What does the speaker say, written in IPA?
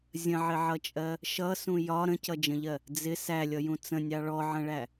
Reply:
zʲ ə̃ ʕ ɪ ʕ ʌ t͡ʃʼ ɜ | ʃ ʌ s ũ j ɒ ɾ ə̃ c ʌ d͡ʒ ə̃ ʎ ɜ | d͡z ɪ s æ lʲ ʌ j ũ t͡s ə̃ nʲ ɑ ɭ ɔ ʕ ə̃ ɭ æ

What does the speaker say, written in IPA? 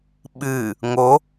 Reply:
ɓ ɨ | ŋ o

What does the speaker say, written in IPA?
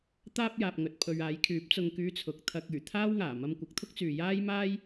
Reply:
t̪ aː˥ p̚ j aː˨ p̚ ŋ ɵ˨ t̚ pʰ ɵ˨ ɥ aː˨˥ j kʰ yː˨˥ p̚ t͡s ʊ˨ ŋ k yː˨˧ t͡sʰ ʊ˨˥ k̚ t̪ʰ ɐ˧ k̚ yː˨˩ t̪ʰ aː˥ w ŋ aː˨˩ m ɐ˧ m kʷ ɐ˨˥ k̚ t̪ʰ ʊ˥ k̚ t͡s yː˨ j aː˥ j m aː˥ j

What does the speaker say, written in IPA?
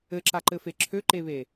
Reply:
ɘ ǁ a ǃ ɘ f e ǁʰ ø ǃ e β e

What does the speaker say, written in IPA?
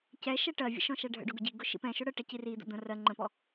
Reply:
c ɛ ʃ ɛ ʈ ɜ vʲ ə̰ ʃ ɔ̃ ʃ æ ɖʱ ə̰ ɖ ʊ ɡ ʊ ɟ i ɡ ʊ ʃ ḭ p ɛ̃ ʃ ʊ ɽ ə ʈ ɛ c i r i d̪ ə̰ d̪ ə̃ r ɜ ŋ͡ǃ ə̃ p ɔ

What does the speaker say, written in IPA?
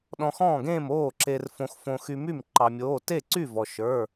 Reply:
ɗ ɔ̃˧ x ɔ̃ː˥˨ ɡ ẽː˥˨ m oː˥˨ ǁ e˧ r f õ˧ x f õ˧ x y˧ m y˥˨ m ǃ ɑ˧ mʲ oː˧˥˧ t e˥˨ ǀ y˥˨ v ɔ˧ ʃ ə˞˧˥˧

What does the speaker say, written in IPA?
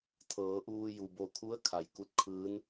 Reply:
t̪ʰ ɤː˩˧ ʔ uː˧ j u˩ b o˧˩ kʰ u˧˥ ə̯ kʰ a˩ j k u˧˩ t̚ kʰ ɯː˧˥ n

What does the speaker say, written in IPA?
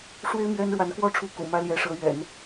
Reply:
ʂ w e˥ ɪ̯ m ɥ ɛ˥ n ɻ w a˧˥ n k w ɔ˥ ʈ͡ʂʰ u˧˥ k ṵ˨˩ m ä˥ l j ɛ˧˥ ʂ ɤ˧˥ ɥ ɛ̰˨˩˦ n

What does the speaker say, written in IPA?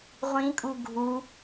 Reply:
ʁʷ ĩ kʼ u ɡʱ u

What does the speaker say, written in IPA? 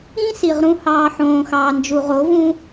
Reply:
ĩ˦ s i˨ ʁ ɾ ũ˦ h ɑː˧ ħ õː˨ x ɑː˨ n d͡ʒ u˨ ʁ o˨˦ v ũ˦

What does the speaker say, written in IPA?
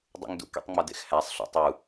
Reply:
dˤ ṵ ŋ d ṵ k ḛ tˤ ŋ͡m ɒ d ḛ x h æ sˤ ɬ ṵ tˤ u

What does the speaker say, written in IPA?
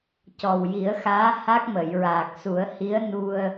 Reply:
c ɔ˨˩ w j i˨˩˦ ə̯ x aː˧˥ h a˦˥ k̚ m ə˨˩˨ j ɹ aː˨˩ k̚ s u˨˩˦ ə̯ h i˧˥ ə̯ n u˧ ə̯

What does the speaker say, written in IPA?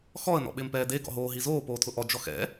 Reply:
x ɔ ə̯ n ɔ̰ ɓ ɪː m p ɛː d e ɡ ɔ̰ ɦ oː ɦ i z oː p oː tʰ ʊ ʔ ɔ d͡ʒ ɔ x ɛ̰

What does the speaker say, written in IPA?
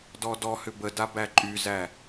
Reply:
d ɔ d ɔ h ʏ b ə d a b æ ǃʼ y z æ

